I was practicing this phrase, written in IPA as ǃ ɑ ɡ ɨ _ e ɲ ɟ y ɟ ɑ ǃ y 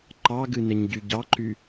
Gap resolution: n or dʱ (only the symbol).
n